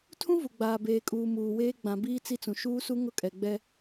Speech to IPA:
tʰ ũ˦ v u˨ ɡ͡b aː˨ b eː˨ kʼ uː˨ m uː˨ w eː˦ ɡ͡b ã˨ b iː˦ t͡s i˦ t͡s ũ˨ ʃ uː˦ s u˦ ŋ ʊ˦ kʼ ɛ˨ ɡ͡b ɛ˦

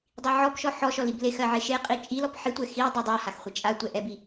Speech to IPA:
dˤ i ʕ ɔ p ʃ ɔ ħ ɔ ʃ ɔ l i b l e x ɜ ʕ e ʃ e qʼ i t͡ʃʼ i l ɔ p ħ i tʷ ɛ x i w dˤ ɛ dˤ a h a x χʷ e t͡ʃʼ a tʷ ɛ ʔ ɛ b i

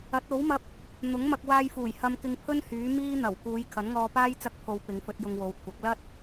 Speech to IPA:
ɐ˨˥ t̚ o˨˥ w m ɐ˧ p̚ | n̪ ʊ˨˥ ŋ m ɐ˧ k̚ w aː˧ j f uː˨˩ j h ɐ˧ m k ɪ˧ ŋ pʰ ɵ˥ n h yː˨˥ m iː˥ n̪ ɐ˨˩ w k uː˨˧ j kʰ ɐ˨˥ n ŋ ɔː˧ p aː˥ j t͡s ɐ˥ k̚ pʰ o˧ w p ɪ˨˧ ŋ f ɵ˧ t̚ j ʊ˧ ŋ w o˨˧ w kʷʰ ɐ˨˥ k̚ l ɐ˥ t̚

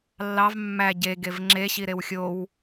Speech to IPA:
lː ɑ v mː æ ɟ e ɡ e v ŋ͡ǁ e ɕ i ɾ e w xʲ o w

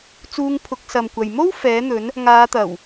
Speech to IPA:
t͡s uː˧ ŋ pʰ ʊ˨˥ k̚ s ɐ˨ m kʷ ɐ˨ j m o˥ w f ɛː˨˥ n̪ ɵ˨˥ n | ŋ aː˨˧ t̪ ɐ˨˩ w

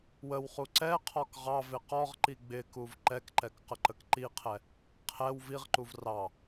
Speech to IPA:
w ə w χ u ǀ ɛ qʰ ɔ k ʁ ɑ v ɪ q ɔ ʁ ǃ i ɡ͡b ɪ k u v ǃ ɛ k ǃ ɛ k q ə ǃ ə k ǃ i qʰ ɛ | qʰ ɛ w v i ʁ ǃ u v r ɑ

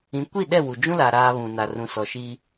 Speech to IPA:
ĩ˨˦ kʷ i˦˨ ɗ ɛ˦˨ w u˨ d͡ʒ ũ˦ l a˨ ɾ aː˦ β ũ˨ n a˨ r ũ˨ s ɔ˨ ʃ i˦

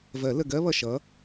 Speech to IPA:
v ɜ˨˩˦ l ə˧˩ ɡ ɜ˥ β ʌ˧˩ ʃ ʌ˨˥

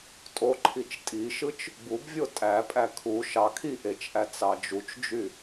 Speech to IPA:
tʼ o ǃʰ i t͡ʃ tʼ i ʃ ɯ t͡ʃ | b u b vʲ o tʼ æ pʼ æ kʰ u ʃ ɑ kʰ i ʔ e t͡ʃ ʔ æ t͡s ɑ d͡ʒ u t͡ʃ d͡ʒ y

